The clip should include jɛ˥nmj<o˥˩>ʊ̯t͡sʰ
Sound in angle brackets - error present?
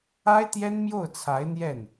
no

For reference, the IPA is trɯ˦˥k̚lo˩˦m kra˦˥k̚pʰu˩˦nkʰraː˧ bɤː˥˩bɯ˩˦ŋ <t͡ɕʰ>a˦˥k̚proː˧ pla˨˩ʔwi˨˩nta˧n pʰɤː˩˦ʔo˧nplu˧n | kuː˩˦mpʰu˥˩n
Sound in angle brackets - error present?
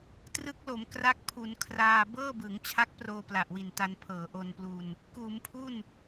no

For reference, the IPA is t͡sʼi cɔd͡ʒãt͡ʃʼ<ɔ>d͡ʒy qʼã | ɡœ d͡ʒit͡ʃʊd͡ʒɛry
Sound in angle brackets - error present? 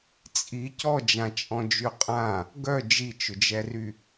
yes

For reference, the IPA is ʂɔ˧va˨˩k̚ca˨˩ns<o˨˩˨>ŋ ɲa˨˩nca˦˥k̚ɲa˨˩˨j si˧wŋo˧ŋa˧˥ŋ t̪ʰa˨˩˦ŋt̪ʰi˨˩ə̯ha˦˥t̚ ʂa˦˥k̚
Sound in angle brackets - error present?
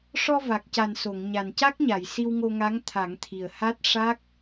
no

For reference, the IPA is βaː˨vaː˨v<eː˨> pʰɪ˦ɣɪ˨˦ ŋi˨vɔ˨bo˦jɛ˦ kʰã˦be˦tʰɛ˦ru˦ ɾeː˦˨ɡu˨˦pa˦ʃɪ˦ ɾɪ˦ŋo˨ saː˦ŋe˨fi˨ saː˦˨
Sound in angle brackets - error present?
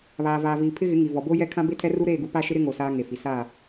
yes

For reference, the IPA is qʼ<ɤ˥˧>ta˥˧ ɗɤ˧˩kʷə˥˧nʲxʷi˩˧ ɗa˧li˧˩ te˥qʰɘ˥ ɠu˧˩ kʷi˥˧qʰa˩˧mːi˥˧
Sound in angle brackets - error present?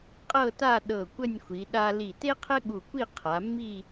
no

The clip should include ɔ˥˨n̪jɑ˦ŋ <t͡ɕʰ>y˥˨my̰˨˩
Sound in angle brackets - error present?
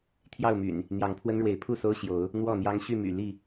yes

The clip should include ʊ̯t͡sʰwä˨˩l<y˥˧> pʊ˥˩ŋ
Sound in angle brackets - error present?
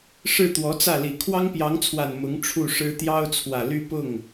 no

